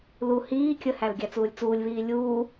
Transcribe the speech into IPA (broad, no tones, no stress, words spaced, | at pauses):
lu hiː kʲəhæl ɡʲæt͡suːlʲt͡suːlʲβiː lʲuː